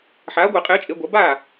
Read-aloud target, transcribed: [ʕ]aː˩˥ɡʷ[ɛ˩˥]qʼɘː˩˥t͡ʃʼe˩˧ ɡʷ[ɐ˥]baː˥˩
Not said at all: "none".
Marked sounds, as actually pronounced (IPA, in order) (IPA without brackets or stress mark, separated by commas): ħ, ɛ˧˩˧, ɐ˩˧